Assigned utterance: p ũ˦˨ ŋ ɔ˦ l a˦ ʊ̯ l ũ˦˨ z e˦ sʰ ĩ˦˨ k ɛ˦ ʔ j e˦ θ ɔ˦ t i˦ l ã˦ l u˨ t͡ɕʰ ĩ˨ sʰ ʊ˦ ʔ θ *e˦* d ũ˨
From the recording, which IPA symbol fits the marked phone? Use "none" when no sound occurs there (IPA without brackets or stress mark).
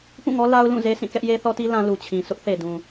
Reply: e˨